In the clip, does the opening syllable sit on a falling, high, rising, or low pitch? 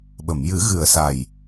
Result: low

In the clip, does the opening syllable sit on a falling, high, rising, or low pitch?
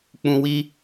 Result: low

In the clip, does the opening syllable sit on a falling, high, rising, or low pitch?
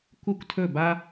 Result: falling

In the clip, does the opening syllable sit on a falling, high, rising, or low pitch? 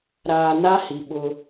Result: low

